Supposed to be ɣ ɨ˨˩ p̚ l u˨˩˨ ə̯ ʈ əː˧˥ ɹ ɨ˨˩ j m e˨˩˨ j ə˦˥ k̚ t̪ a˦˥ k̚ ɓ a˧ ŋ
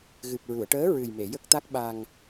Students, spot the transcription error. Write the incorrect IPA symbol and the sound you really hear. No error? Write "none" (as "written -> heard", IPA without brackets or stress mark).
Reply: l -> ɹ